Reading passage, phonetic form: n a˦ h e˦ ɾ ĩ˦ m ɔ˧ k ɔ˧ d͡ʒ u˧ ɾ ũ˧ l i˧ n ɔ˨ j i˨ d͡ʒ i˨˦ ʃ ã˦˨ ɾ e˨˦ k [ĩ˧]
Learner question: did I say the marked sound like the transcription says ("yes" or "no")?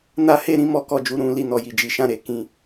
yes